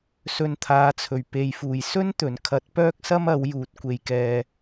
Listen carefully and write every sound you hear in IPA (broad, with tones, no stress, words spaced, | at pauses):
sɵ˨nt̪ʰaː˨˧t͡sʰɵ˨˩ɥ pe˨jfuː˨˩j sɵ˥nt̪ɵ˨˩nkʰɐ˨˥t̚ pœː˥k̚sɐ˥mɐ˨˥w juː˨˥t̚kʷe˧jkɛː˧